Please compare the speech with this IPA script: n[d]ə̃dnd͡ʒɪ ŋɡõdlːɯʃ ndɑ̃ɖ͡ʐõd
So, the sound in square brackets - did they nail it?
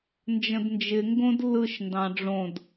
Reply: no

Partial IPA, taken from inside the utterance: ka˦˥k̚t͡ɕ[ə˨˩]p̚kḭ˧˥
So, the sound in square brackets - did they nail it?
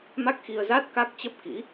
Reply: no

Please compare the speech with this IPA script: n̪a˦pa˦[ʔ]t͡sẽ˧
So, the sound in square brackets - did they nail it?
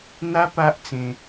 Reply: yes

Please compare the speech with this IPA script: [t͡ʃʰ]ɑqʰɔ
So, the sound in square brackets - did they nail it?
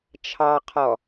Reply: yes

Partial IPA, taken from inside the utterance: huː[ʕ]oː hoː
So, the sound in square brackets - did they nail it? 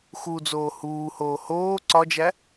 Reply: no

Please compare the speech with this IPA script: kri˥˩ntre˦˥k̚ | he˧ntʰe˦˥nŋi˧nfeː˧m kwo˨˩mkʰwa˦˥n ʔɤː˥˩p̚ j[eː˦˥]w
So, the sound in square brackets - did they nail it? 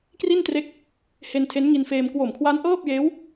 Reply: yes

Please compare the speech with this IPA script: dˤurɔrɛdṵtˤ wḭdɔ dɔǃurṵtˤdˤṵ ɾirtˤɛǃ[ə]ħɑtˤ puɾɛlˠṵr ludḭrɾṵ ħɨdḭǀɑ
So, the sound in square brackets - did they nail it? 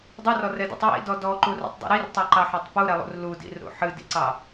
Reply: no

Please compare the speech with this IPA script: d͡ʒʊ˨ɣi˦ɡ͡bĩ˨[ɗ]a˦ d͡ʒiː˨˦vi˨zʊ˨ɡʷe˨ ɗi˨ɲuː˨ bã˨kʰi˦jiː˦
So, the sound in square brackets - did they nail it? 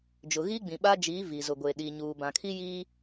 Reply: no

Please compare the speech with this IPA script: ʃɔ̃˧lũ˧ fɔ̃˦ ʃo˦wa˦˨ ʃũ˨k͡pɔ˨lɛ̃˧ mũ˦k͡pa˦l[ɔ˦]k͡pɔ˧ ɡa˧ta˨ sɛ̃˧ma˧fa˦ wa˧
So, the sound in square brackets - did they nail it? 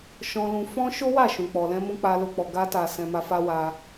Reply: no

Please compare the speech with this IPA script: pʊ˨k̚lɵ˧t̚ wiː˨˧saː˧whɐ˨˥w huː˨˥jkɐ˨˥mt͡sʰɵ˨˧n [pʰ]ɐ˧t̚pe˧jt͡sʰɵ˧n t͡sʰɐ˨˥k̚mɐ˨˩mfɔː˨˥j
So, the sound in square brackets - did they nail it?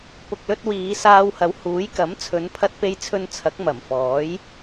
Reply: yes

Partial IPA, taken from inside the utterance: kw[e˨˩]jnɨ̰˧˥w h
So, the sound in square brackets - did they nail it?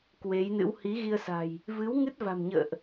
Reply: no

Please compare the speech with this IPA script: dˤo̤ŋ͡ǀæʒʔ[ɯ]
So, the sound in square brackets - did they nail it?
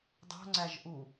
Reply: no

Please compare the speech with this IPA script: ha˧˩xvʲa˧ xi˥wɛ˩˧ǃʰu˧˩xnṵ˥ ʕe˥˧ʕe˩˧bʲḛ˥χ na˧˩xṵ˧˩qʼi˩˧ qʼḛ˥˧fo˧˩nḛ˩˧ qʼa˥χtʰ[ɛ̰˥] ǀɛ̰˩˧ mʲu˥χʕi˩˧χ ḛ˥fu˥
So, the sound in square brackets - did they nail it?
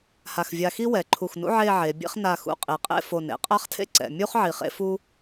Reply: no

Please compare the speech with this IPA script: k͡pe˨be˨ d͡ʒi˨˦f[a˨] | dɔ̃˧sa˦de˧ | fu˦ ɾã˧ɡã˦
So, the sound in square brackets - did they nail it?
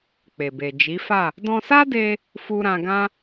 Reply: no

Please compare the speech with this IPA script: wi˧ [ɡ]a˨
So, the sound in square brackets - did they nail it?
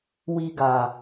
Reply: yes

